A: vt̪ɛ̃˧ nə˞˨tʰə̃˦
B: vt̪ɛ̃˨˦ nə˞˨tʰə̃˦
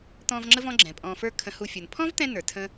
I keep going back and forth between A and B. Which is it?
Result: A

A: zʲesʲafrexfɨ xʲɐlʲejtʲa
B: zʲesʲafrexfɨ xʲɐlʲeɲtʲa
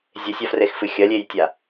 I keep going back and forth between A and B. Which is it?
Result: A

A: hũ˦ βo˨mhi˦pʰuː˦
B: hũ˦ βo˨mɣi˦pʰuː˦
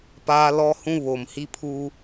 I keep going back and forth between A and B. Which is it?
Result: A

